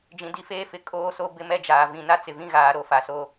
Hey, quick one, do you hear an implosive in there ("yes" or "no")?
no